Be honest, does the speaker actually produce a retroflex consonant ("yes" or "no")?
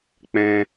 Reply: no